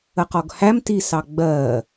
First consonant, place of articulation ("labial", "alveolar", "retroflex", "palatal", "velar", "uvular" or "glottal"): uvular